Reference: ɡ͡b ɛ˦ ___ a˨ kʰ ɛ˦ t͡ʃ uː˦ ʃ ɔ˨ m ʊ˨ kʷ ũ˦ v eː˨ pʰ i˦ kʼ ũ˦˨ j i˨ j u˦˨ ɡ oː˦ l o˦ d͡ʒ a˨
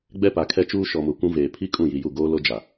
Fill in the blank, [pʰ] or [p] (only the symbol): p